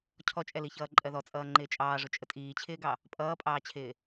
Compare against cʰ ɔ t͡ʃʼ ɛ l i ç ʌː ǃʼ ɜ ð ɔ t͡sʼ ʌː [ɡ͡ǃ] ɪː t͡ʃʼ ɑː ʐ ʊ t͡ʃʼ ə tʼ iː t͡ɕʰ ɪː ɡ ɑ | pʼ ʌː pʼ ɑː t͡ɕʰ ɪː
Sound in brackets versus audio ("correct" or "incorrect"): incorrect